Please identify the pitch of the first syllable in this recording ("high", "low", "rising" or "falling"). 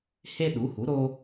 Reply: high